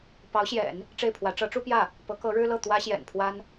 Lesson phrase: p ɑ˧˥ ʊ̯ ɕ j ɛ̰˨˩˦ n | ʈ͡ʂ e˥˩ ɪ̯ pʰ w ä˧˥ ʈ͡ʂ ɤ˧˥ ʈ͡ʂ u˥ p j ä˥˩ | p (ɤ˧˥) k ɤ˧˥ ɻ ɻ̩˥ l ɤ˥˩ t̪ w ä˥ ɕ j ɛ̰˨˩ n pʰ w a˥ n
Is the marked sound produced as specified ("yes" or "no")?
yes